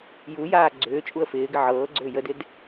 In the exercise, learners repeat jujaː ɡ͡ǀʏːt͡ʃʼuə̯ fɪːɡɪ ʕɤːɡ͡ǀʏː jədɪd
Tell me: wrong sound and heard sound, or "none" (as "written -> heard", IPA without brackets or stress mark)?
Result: none